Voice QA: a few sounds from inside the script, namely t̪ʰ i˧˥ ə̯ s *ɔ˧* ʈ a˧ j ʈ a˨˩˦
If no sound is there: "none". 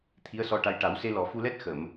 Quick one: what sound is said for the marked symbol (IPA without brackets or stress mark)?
ɔ˧